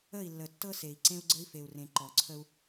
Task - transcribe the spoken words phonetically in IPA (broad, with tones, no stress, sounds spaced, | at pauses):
ə˦˨ i̯ lː ə˨ tː ɤ˦ s e˨ i̯ ǀ ẽ˦ u̯ ɡ͡ǀ ə˦ i̯ f e˨ u̯ r ẽ˨ ǃ ɔ˨ ǀʰ ə˦ u̯